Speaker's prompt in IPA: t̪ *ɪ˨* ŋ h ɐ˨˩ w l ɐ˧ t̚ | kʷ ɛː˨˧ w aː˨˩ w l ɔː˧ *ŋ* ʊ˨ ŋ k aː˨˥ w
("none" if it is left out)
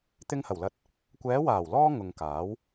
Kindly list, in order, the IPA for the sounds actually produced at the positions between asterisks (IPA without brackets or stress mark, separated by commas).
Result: ɪ˧, ŋ